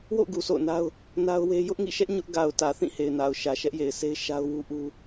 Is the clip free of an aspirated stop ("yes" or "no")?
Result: yes